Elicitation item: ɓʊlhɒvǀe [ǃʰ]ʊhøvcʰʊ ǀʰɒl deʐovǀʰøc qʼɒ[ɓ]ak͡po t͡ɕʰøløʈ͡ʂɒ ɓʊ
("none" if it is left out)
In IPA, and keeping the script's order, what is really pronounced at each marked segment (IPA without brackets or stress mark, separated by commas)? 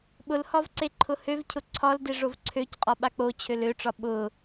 ǃʰ, ɓ